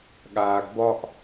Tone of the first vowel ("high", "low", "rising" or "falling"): low